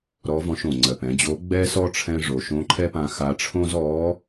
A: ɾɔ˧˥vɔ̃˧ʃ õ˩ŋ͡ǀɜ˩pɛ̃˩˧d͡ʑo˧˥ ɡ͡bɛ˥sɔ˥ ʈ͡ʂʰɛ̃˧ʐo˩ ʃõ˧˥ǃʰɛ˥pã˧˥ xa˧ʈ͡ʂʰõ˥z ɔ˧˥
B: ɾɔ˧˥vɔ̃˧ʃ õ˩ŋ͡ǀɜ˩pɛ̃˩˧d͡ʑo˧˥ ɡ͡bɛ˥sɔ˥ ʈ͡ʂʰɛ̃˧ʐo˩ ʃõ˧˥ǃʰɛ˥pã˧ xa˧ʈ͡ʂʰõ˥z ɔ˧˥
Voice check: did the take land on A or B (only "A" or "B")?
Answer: B